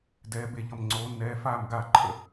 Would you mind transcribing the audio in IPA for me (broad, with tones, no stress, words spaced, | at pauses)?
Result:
dɛː˩˧be˧˩ʎʌ˧˩m ŋ͡ǀoː˩˧nːɛː˩˧faː˧˩m ɡaː˧˩ǃʰə̰˧˩